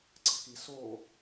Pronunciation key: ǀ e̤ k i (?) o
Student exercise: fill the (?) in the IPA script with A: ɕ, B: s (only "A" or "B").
B